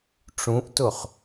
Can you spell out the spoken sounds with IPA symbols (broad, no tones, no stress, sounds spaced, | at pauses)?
ʈ͡ʂ ũ ʔ t ʊ χ